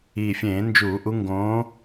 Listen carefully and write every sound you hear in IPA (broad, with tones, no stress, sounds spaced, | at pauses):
iː˨˩ fʲ ẽː˧˩˧ n d͡ʒ uː˧˩˧ ʔ u˨˦ ŋ ɡ õː˨˦